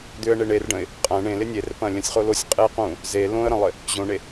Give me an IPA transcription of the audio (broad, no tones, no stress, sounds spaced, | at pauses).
d̪ ʏ ə̯ ɳ e ɳ e r ɖ ə̃ ɪ̯ | qʼ ɐ̃ ɳ ẽ l ɪ nʲ e r p ɐ̃ lʲ ə̃ sʲ χ o l o sʲ qʼ e q ũ | z e l õ ə̯ ɾ ə̃ lˠ ɪ | ʑ õ ɳ e